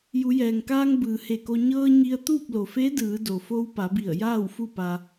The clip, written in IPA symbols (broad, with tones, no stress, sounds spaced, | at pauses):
j u˩˧ j ɛː˩ ŋ k aː˧ ŋ b ɯː˩ h e˧˩ k o˧ ɲ ɤː˧ ɲ i˧ ə̯ t̪ uː˥˨ p̚ l o˩ f e˧˥ d ɯː˩˧ d o˩ f o˧ w p a˩˧ b i˧˩ ə̯ j aː˥˨ w f u˥˨ p a˧